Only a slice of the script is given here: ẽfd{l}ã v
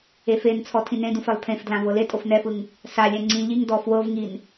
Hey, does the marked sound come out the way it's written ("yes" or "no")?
yes